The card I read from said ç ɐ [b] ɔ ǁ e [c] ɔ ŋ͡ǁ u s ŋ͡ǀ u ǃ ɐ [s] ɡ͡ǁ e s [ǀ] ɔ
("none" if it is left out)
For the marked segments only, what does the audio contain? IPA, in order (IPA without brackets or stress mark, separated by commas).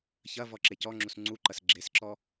v, c, s, ǁ